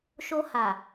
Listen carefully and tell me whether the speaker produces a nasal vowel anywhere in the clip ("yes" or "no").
no